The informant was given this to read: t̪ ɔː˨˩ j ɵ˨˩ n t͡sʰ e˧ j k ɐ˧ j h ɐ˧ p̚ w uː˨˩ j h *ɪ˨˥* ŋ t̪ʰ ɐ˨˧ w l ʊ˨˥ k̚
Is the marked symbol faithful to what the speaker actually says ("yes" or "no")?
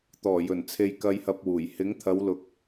yes